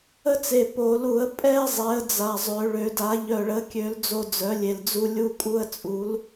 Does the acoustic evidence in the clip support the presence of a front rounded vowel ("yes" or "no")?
yes